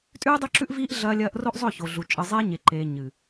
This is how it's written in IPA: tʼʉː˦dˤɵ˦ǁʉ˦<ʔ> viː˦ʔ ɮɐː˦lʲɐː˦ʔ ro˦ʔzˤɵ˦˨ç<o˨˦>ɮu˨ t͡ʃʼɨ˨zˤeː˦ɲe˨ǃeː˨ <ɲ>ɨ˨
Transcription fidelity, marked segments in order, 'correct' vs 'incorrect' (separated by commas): correct, incorrect, correct